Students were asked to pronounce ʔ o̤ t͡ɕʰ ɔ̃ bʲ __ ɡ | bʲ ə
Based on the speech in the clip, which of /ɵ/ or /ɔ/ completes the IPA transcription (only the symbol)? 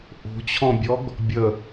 ɔ